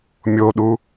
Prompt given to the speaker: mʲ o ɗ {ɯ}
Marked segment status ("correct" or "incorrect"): incorrect